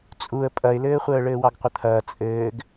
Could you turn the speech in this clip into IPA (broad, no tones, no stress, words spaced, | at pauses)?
t͡sʼuə̯ pʼɐɪ̯lɘːχʷəː ɭɘːwɑɡqʷət̪ʰɐː t͡sʼɘːɡ